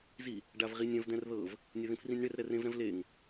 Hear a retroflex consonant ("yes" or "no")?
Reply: yes